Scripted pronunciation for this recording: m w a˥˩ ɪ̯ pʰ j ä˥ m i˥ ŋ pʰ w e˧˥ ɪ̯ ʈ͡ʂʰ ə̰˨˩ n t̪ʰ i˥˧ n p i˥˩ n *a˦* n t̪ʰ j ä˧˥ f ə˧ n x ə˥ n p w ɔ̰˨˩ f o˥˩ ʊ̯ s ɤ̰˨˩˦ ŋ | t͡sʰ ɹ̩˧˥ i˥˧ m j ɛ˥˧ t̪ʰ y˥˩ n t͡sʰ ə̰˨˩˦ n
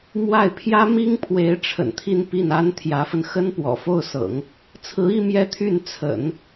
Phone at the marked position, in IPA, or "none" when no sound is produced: a˥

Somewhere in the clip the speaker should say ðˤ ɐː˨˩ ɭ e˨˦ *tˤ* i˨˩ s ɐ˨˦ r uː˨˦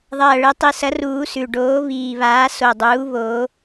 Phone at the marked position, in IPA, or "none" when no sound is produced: tˤ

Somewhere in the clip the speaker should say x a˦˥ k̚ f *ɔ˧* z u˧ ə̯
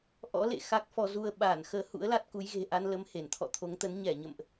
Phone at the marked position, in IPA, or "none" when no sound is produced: ɔ˧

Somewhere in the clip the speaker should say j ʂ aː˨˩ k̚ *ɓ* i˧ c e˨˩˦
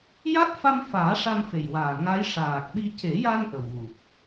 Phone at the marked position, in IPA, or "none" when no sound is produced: ɓ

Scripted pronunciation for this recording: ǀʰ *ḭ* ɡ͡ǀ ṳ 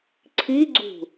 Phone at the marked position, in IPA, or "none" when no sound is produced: i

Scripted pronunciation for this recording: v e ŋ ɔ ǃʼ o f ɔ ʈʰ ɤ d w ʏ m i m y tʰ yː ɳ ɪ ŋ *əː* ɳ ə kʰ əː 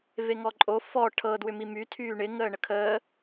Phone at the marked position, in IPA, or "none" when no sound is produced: əː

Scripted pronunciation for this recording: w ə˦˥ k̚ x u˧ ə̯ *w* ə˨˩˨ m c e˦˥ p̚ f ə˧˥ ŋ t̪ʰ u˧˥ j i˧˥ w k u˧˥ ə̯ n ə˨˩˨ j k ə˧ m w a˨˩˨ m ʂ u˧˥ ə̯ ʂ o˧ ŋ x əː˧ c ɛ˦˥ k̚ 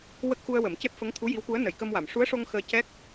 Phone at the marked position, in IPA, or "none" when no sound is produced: w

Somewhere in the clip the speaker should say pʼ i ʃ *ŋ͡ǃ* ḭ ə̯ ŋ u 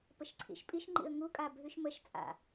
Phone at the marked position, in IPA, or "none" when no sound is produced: ŋ͡ǃ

